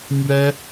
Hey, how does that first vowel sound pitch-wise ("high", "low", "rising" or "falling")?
high